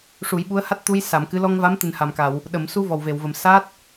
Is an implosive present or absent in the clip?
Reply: present